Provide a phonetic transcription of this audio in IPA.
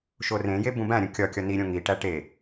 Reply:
ʃ o r ẽ j e b ũ b æ̃ ɾʲ ũ kʲ ɒ kʲ ɒ n i ɾʲ õ ŋ i ʈ æ ʈ e

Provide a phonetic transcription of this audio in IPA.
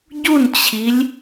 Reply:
ɟ u n t͡ɕʰ i lʲ

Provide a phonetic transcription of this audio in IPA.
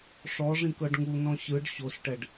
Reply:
ʂ ɔ ʐ ĩ k ɤ ɖ ŋ u n ɔ̃ ɕ ɯ ɖ ɕ o s ʈ ɛ ɖ

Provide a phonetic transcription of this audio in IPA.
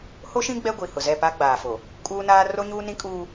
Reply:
h o˦ ʃ ĩ˦ ɡ͡b ɛ˦ ɡʷ i˨ h ʊ˨ z ɛ˦˨ p a˦ ɡ͡b aː˨ f o˨ | kʼ uː˦ n aː˦ r o˦ ɲ uː˦ n ĩ˦ kʼ uː˦

